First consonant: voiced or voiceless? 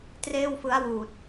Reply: voiceless